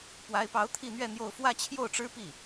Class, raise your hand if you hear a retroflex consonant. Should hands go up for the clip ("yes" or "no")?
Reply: yes